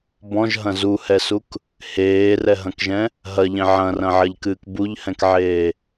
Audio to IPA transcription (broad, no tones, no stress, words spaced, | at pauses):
bɔ̃ʒɦɐ̃ zuhɛsuk | heːrɛɦɐ̃kʒɛ̃ | ɦɐʎẽ ʕɐ̃rɐ̃ʕɐʎkɨːk buʎhɛ̃kʕeː